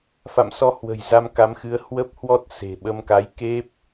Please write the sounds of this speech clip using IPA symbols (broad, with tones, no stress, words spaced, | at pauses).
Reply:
fa̰˧˨msɔ˧hwə̤˨˩j za˧mka˨˦mxɨ˨˦ə̯ hwə˦˥p̚hwɔ˦˥t̚ se̤˨˩ ɓə˧mka˨˦j ke˦˥p̚